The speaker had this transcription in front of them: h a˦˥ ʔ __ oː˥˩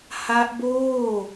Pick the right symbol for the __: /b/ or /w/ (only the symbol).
b